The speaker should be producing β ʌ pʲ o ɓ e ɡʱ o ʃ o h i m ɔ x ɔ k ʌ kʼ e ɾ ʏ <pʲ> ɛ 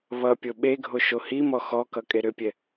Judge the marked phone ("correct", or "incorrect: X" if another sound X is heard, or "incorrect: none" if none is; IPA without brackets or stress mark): correct